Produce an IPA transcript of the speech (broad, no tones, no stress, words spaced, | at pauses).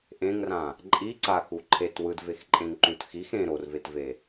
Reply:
ʔẽŋrã | ǃʼiǀaxu ǃʰet wɯdvexǃʼẽŋǃũt xix ẽ ɾorvetve